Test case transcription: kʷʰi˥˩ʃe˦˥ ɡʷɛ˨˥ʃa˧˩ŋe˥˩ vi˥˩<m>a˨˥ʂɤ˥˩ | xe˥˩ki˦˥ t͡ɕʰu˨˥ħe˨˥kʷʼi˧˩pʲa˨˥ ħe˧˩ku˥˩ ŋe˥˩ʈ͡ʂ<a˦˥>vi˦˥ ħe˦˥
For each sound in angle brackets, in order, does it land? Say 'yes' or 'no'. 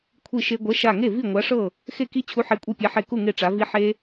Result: no, no

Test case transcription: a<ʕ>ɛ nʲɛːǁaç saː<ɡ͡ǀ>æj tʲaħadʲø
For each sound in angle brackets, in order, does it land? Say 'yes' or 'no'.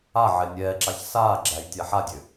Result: yes, no

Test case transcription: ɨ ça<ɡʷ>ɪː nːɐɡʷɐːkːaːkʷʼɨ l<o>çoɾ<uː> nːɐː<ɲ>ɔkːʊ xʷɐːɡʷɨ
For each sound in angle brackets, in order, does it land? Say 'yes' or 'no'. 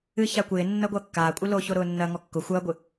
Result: no, yes, no, no

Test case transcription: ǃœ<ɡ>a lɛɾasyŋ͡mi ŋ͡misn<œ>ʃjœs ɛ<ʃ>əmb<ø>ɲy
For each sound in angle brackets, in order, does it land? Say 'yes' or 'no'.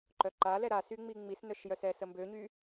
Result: no, yes, no, yes

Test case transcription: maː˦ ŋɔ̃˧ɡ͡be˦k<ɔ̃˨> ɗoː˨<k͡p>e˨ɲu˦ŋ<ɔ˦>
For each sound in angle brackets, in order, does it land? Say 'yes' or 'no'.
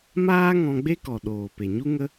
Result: no, no, no

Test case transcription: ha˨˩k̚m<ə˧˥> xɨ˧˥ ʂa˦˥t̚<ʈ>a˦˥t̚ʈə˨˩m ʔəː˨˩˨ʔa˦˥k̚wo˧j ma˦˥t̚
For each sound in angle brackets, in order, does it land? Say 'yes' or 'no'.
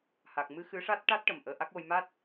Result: no, yes

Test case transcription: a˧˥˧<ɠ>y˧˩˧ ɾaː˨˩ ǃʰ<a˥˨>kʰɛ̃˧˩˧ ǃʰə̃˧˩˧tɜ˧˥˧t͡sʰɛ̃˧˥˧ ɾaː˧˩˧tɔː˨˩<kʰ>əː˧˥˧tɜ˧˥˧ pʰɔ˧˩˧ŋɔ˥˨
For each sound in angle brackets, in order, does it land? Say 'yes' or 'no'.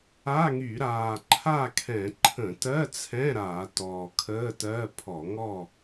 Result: no, yes, yes

